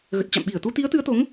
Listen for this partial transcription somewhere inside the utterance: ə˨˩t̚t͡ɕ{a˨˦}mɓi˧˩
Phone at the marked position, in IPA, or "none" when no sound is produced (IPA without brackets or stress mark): a̰˧˨